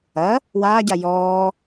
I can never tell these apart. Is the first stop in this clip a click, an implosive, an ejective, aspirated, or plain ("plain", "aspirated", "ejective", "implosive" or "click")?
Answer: plain